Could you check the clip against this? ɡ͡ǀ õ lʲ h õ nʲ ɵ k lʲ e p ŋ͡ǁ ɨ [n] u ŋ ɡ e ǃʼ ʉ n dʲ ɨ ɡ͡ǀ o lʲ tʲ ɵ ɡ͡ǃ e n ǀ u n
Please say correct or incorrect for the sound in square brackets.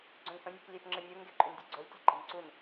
incorrect